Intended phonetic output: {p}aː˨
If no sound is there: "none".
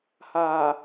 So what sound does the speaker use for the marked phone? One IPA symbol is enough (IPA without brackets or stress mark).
h